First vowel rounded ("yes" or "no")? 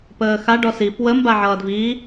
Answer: no